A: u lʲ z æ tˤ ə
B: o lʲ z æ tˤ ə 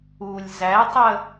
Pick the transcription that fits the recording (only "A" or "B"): A